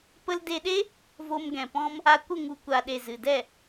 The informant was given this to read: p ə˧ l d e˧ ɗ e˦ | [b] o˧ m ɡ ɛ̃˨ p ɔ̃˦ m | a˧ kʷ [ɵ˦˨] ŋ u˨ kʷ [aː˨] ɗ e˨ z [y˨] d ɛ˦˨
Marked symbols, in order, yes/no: no, no, no, no

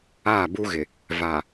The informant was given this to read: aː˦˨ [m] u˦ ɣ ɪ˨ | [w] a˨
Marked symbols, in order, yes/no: no, no

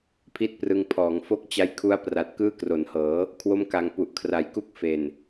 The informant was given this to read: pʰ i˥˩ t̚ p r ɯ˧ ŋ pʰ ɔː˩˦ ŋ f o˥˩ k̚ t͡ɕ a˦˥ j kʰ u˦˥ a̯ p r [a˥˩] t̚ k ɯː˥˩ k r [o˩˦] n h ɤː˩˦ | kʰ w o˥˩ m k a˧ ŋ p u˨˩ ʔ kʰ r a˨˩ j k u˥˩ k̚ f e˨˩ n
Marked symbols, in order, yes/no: no, yes

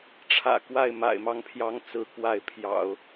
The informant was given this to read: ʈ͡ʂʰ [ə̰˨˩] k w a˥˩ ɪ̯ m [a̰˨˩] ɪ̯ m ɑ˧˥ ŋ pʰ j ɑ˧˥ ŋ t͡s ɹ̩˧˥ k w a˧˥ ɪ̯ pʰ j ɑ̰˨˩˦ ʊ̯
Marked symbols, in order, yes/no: no, yes

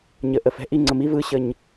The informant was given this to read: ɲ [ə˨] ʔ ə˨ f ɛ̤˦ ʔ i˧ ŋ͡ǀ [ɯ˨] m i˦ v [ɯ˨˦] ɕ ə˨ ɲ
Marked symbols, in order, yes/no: yes, no, yes

